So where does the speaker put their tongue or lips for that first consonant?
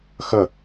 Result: velum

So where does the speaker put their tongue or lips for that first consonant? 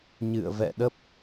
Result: palate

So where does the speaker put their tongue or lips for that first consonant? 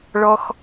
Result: retroflex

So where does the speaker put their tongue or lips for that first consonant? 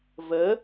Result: lips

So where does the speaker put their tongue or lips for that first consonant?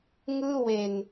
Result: velum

